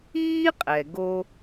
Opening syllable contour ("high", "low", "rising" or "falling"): high